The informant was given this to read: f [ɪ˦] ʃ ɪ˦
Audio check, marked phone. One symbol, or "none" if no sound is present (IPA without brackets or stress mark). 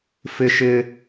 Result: ɪ˦